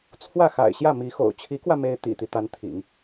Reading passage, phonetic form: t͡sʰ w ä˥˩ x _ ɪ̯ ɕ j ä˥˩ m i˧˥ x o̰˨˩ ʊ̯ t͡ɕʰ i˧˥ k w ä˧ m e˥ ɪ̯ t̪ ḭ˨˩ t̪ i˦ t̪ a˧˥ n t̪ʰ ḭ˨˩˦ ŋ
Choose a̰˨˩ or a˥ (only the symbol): a̰˨˩